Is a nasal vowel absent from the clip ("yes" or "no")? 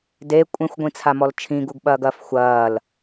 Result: no